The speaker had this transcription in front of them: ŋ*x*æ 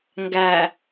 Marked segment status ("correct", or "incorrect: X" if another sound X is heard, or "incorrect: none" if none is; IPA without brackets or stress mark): incorrect: ɡ